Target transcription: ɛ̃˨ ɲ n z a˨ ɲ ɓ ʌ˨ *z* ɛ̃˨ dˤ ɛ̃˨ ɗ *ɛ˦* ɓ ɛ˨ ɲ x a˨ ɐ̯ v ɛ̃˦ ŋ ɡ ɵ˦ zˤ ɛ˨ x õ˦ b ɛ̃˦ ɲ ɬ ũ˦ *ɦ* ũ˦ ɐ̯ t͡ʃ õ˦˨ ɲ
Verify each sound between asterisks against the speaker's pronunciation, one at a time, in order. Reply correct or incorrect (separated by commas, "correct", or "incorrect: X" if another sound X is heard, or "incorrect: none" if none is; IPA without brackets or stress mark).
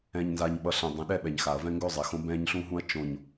incorrect: ɬ, correct, correct